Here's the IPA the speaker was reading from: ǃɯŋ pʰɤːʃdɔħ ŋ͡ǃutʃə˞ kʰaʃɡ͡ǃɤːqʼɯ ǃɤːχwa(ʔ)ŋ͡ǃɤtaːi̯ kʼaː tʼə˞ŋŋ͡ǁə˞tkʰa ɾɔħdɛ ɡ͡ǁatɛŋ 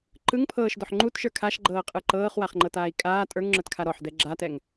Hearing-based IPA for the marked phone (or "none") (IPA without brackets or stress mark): χ